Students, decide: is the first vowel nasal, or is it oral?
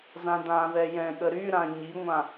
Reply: nasal